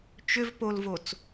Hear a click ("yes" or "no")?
no